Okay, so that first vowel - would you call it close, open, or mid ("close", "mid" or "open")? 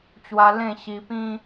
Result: open